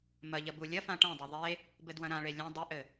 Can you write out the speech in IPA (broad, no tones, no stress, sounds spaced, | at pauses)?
m ɐ ʎ ɐ b u lʲ ɐ f ã ʈ ɐ̃ dˤ ɐ ðˤ e | b ɘ d w ɐ̃ ɾ ã ɭ e lʲ ɐ̃ dˤ ɘ ʔ ɘ